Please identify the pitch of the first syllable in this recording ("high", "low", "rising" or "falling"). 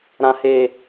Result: low